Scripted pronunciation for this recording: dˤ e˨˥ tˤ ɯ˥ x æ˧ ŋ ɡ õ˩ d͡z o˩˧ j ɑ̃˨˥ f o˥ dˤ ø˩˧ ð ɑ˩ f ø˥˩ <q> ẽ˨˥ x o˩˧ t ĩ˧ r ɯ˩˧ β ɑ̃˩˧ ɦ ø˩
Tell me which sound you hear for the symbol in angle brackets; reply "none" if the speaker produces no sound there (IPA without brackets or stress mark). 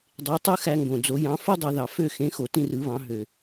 x